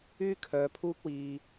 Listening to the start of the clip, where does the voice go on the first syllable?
high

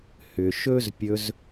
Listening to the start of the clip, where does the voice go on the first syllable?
low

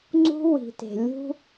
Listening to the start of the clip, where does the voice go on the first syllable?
high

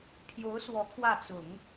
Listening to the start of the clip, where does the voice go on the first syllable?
rising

